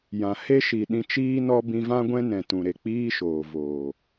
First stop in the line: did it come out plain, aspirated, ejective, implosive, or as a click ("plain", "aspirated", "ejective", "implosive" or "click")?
implosive